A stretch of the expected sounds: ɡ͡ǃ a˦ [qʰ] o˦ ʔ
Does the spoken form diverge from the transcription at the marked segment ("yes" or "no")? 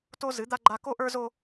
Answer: yes